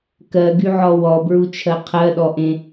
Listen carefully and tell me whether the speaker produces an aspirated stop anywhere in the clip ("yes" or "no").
yes